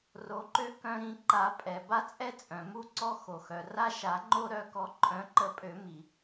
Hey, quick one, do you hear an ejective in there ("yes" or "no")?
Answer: yes